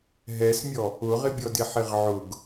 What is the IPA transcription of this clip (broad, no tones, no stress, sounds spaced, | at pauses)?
ɦ ɛ s mʲ ɔ | ʊ ʁ ɪ bʲ ɔ d ɪ ħ ɪ ʁ ʕ ʊ ɡ